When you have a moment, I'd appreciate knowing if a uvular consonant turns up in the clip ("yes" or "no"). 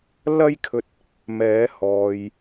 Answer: no